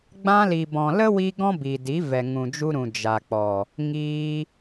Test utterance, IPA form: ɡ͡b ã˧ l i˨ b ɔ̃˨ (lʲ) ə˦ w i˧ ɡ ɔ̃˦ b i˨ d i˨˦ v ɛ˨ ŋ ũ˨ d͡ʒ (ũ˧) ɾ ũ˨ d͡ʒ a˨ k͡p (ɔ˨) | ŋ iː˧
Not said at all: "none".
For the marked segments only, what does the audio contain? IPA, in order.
l, u˧, ɔ˨

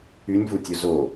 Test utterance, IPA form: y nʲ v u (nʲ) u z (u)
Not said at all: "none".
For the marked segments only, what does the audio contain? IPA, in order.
tʲ, o

